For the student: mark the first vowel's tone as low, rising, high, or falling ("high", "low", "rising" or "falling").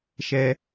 high